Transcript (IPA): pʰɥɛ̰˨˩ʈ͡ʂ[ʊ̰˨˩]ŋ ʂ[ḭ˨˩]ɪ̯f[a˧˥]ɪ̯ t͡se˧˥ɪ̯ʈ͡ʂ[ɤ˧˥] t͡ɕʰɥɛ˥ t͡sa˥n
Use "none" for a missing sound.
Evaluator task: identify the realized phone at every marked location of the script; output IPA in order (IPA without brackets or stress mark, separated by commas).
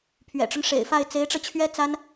ʊ˦, ḛ˨˩, a˥˩, ɤ˧